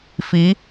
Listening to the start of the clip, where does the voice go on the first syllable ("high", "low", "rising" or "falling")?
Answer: rising